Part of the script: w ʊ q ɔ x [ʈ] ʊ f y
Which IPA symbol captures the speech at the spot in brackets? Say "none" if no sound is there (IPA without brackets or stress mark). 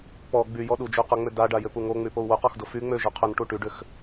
d